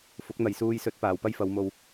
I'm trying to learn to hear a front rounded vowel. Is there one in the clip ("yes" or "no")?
no